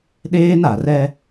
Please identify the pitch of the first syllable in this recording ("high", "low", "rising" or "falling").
high